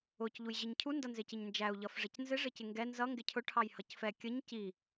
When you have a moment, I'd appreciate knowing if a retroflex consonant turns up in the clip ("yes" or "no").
yes